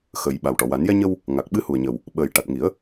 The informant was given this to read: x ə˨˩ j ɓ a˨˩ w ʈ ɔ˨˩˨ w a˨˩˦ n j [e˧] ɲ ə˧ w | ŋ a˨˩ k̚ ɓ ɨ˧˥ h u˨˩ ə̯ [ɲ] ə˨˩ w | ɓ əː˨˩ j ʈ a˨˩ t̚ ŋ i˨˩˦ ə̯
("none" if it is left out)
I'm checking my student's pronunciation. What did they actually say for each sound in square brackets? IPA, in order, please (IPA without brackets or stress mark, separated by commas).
ɛ˧, ɲ